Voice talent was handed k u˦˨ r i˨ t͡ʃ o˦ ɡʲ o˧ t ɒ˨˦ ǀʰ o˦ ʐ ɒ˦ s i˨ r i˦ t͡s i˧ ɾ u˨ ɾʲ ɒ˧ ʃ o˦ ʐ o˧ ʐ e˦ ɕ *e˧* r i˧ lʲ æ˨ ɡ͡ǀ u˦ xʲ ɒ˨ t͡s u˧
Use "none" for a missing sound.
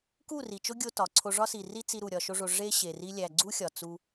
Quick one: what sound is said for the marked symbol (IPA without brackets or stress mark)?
e˨